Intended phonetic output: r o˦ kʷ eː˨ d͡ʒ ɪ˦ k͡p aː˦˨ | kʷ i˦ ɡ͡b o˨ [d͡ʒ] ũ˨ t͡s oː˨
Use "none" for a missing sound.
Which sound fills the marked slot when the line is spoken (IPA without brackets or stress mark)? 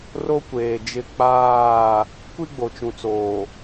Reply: t͡ʃ